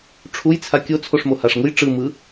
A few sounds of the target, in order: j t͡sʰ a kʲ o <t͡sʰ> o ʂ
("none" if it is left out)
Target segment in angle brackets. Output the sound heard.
t͡sʰ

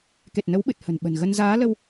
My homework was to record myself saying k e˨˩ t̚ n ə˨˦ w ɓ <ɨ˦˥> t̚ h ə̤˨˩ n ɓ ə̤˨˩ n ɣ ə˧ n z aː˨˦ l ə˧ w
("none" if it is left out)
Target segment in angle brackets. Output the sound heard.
ɨ˨˩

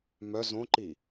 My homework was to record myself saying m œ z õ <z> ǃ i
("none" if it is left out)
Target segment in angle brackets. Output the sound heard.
none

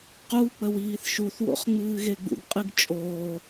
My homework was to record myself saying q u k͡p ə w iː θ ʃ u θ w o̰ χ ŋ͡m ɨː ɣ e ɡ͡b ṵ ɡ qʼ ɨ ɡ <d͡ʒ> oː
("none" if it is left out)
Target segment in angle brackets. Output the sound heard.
t͡ʃʼ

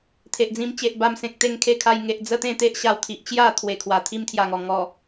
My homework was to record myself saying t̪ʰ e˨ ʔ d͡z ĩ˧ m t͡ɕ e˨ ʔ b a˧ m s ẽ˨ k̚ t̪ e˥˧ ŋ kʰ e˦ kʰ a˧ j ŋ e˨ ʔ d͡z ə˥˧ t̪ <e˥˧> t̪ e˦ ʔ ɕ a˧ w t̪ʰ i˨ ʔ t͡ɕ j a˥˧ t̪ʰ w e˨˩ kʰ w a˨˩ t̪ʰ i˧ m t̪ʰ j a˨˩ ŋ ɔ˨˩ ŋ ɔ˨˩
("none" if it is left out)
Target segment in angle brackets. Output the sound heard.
ẽ˥˧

